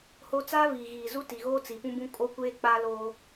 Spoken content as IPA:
ho˦ t͡saː˦viː˨ɣiː˨zu˦ ti˨ɣoː˦ t͡si˨pũ˦bũ˦ kʼo˦ kʷeː˦k͡paː˦loː˦

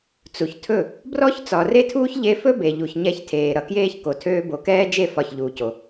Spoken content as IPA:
t͡su˨çtʰɵ˦˨ | brɔ˦ç t͡sɒ˨re˦tʰuː˦ç ʎe˧fɵ˦ be˨ʎu˨ç ɲɛ˧çtʰeː˨ ɾʌ˨ kjeː˦ç ko˨ tʰøː˧bo˨kɛː˦d͡ʒe˦˨ fɒ˦˨çʎuː˧co˧

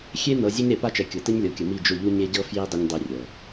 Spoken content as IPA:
xʲe˦ nɤ˨ zʲe˦ɲɾe˨pa˦t͡ʃɛ˨ kʲɤ˨tə˦ɲlʲɤ˨kʲə˨ mi˦˨d͡ʒʊ˦˨ʎu˦ ɲe˦ɟɤ˦ fji˦ dˤʊ˦ɲ dˤi˦rʲɤ˨

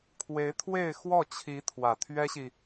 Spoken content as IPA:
kʰwe˧˥ɪ̯t̪ʰwe˥˧ɪ̯ xwɔ˥˩t͡ɕʰi˧˥ t̪ʰwä˨˩ t̪ʰɥɛ˥ɕi˨

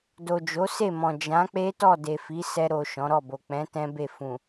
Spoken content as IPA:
do˨d͡ʒo˨˦se˦˨mɔ̃˨ d͡ʒã˨˦k͡pe˦tɔ˦˨ de˨fi˨˦sɛ˧ ɾo˨ ʃɔ̃˨˦ɾɔ˦˨bo˨ k͡pɛ̃˨˦ tɛ̃˦ be˦˨ fũ˨

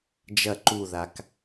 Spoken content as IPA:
d͡ʒɐ ǃuðak

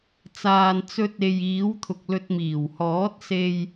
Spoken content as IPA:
t͡saː˨n t͡sɵ˧t̚e˨jiː˨˥wt̪ʰʊ˨k̚ lɵ˨t̚miː˨˩whɔː˨˥t̚ se˧j

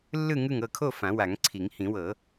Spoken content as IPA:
lːɯ˥˨ŋɯ˥˨ŋ ɤ˥˨kʰo˥˨ fã˨˩˦wa˨˩˦ŋǀʰi˨˩˦ŋ hĩ˨˩˦wɤ˨˩˦

